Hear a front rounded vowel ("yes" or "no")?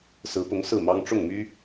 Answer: yes